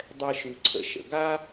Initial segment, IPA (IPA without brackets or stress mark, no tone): dˤ